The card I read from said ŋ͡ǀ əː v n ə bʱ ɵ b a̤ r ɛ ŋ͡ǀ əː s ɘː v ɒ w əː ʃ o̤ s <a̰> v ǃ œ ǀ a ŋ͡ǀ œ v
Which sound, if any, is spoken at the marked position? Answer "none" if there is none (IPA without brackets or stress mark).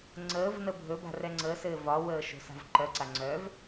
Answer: a̤